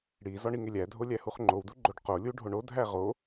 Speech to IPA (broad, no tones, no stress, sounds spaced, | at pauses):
ɽ i z ɒ ɳ i ŋ e lʲ æ dʱ o lʲ æ h u χ ŋ͡ǃ o w d u ɡ͡ǃ o ɖ q o lʲ u ɖʱ o ɳ o dʱ æ ʁ o